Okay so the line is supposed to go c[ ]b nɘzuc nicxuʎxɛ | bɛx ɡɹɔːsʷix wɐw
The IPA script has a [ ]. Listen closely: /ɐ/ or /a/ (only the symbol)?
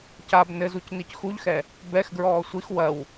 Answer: a